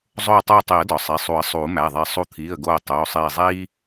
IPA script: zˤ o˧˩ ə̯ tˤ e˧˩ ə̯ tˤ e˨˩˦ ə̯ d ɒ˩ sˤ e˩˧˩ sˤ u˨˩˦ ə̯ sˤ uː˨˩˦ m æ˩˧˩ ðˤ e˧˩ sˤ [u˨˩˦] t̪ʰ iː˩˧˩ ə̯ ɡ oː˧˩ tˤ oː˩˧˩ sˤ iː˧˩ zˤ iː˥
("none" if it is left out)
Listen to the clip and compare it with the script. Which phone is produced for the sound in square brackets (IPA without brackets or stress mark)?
u˧˩